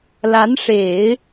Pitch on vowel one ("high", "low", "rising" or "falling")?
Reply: rising